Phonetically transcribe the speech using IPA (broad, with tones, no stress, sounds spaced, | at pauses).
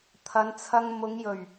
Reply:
t̪ʰ ɐ˨˧ n t͡sʰ ɐ˧ ŋ m ʊ˨˧ ŋ j ɵ˨˩ ɥ